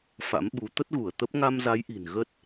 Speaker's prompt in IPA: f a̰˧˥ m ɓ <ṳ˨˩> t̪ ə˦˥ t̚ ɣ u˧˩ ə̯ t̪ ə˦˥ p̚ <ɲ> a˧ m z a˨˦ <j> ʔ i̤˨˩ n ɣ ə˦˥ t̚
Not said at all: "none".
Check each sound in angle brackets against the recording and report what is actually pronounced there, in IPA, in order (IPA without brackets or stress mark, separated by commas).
u˨˦, ŋ, j